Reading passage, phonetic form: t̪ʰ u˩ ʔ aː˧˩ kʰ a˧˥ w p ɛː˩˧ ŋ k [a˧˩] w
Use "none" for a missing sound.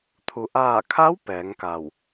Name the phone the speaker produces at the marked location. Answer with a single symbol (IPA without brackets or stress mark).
a˧˩